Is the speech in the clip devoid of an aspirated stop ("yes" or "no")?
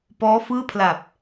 no